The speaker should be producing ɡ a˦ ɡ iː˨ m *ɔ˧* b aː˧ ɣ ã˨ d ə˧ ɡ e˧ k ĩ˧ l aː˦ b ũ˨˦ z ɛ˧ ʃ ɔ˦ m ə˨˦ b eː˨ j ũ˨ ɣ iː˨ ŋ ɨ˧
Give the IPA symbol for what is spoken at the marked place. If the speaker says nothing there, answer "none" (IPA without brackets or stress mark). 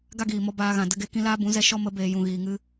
ɔ˧